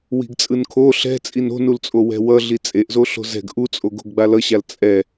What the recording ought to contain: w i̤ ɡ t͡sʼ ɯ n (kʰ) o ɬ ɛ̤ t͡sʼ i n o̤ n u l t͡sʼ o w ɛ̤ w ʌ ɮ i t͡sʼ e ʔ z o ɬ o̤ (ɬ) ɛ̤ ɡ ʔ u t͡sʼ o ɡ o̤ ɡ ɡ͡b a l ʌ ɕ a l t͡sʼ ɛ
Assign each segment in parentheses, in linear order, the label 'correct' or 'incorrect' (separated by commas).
correct, incorrect